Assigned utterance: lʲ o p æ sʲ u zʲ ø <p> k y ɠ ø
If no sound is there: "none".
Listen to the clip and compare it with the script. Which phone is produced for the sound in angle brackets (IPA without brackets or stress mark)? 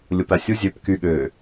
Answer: p